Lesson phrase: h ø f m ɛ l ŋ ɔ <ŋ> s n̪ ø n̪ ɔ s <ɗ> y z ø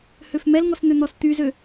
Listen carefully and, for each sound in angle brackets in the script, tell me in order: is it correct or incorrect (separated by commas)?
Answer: incorrect, incorrect